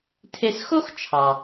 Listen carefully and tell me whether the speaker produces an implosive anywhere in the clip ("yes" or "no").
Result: no